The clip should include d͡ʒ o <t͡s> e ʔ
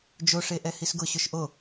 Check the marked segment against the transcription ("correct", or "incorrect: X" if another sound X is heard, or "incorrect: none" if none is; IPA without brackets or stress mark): incorrect: ʂ